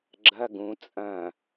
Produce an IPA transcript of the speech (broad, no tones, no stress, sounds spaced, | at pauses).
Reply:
ɡ͡ǁ ɐ ɡ ũ t͡sʼ ɐ̃